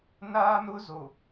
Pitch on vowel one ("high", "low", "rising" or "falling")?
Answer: high